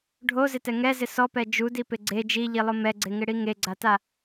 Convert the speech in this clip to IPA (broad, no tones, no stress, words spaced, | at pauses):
ɖʱozɪtɛ ŋɛzɪ sɔpɛ d͡ʒudipɪ ɡ͡ǀe d͡ʒiʎilˠʊ mɛɡ͡ǀeŋɪɽi ŋeɡ͡ǀata